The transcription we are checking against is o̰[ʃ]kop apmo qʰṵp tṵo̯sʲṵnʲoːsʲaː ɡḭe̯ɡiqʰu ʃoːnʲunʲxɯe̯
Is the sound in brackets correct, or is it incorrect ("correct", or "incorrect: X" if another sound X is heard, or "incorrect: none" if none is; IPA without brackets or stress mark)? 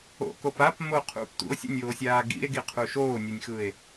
incorrect: none